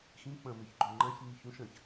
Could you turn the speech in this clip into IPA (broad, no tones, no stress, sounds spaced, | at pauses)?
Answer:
x ĩ k͡p ɐ̃ m e ç ɡ͡ǃ o ŋ͡ǃ ã ç ɲ i ç ũ ʃ ɐ̃ ç